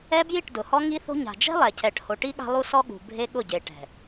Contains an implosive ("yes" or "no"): yes